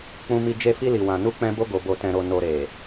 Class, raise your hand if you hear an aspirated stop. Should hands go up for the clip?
no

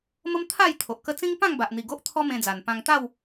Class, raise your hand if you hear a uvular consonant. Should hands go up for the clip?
no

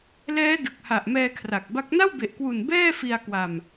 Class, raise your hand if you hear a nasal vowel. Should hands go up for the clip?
no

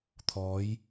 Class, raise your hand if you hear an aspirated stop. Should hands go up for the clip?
yes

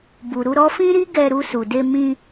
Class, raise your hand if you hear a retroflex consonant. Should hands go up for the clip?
no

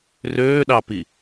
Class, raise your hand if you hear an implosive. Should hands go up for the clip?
yes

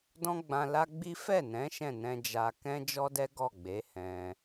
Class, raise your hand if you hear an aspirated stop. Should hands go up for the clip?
no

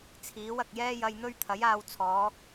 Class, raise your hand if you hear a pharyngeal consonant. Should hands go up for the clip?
no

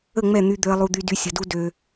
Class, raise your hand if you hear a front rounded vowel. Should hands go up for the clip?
yes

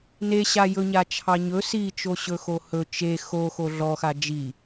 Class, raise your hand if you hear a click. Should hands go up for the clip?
no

